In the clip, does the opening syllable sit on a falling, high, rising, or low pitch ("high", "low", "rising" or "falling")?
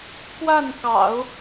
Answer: falling